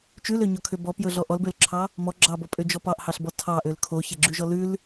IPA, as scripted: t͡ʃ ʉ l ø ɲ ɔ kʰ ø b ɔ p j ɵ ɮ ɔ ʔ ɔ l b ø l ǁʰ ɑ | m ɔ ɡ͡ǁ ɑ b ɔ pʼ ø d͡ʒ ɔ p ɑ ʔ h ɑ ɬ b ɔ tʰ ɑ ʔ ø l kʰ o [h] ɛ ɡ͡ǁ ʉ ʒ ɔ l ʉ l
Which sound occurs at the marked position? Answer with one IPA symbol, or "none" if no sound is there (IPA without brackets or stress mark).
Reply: ç